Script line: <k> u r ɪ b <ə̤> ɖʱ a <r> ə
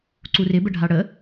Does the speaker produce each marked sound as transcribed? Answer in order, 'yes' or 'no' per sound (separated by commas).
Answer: no, no, no